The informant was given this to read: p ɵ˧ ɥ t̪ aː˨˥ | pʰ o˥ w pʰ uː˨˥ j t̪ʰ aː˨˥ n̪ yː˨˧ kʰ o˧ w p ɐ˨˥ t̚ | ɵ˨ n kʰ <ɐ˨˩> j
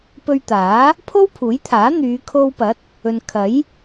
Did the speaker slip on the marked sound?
yes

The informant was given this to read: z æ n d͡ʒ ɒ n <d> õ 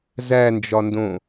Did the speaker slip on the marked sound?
no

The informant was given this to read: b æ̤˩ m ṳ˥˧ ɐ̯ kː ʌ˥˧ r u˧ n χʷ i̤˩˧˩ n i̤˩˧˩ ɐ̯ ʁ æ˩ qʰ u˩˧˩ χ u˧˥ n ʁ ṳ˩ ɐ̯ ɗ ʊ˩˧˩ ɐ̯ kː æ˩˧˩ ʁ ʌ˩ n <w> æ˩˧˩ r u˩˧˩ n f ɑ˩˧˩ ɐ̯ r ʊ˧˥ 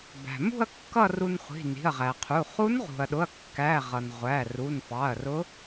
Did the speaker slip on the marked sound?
yes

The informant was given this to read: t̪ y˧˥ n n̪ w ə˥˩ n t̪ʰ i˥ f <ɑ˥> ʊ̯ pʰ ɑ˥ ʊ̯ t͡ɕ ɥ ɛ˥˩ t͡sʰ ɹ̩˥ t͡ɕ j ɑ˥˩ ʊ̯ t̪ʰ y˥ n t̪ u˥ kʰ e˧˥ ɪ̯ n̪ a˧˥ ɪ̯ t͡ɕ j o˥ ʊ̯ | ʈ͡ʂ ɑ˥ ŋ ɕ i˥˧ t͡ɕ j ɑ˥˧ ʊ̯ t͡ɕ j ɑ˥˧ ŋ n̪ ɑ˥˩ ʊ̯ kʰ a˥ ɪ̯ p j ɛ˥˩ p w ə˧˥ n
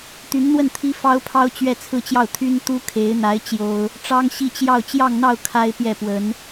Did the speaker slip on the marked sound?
no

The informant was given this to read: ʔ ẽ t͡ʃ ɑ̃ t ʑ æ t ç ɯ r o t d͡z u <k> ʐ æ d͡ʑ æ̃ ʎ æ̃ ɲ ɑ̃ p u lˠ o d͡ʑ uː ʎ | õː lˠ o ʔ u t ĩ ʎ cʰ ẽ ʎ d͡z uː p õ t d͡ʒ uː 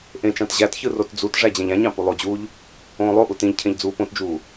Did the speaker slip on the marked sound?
yes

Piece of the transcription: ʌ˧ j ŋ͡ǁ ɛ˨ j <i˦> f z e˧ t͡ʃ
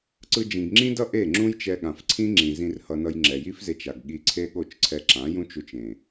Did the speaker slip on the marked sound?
no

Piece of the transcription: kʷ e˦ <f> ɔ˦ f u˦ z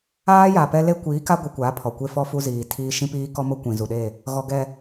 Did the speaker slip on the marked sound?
no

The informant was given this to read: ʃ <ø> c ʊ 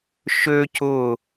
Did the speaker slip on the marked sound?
no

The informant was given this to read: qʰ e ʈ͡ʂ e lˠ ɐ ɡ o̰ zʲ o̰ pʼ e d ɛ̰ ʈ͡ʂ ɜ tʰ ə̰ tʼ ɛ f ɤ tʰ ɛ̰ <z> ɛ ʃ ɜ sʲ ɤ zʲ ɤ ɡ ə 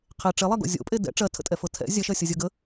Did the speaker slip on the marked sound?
yes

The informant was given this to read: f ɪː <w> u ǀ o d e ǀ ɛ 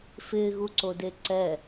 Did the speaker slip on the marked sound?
yes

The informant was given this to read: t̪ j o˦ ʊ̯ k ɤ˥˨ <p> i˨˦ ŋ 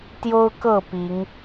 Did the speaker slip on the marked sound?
no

